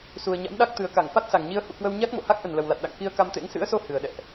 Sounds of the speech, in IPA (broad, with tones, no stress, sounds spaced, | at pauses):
s u˨˩ ə̯ ɲ a̰˧˥ m ɗ a˦˥ k̚ t̪ ɨ˨˩ ə̯ k a˧˩ ŋ f a˦˥ t̚ s a˨˩ ŋ ɲ i˧ ə̯ h ṵ˧˨ k w ə˧ w ɲ a˦˥ k̚ m o̰˧˨ h a˦˥ k̚ ʔ ə˨˩ n l ə˨˩ w l a˨˩ t̚ ɗ a̰˧˨ ŋ k i˧ ə̯ k a˧ m t̪ ḛ˧˥ ŋ s ɨ̰˧˥ ə̯ s o˧ h ɨ˨˩ ə̯ ɗ ɛ̰˧˨ ʔ